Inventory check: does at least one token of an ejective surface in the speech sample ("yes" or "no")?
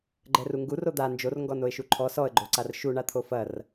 no